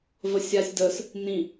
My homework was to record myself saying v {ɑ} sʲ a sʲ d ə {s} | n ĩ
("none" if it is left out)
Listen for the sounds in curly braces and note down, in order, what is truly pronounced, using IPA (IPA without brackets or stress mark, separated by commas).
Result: ə, s